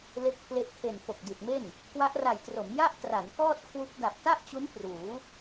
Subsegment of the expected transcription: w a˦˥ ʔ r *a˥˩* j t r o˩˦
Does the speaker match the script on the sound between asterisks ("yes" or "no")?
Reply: no